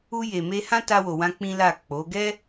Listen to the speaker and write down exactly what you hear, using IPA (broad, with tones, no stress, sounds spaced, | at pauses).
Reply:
u˧ j e˨ m e˧ h ã˦ t a˧ w o˨ w ã˧ k͡p ĩ˦ l a˦˨ k͡p o˨˦ ɡ ɛ˦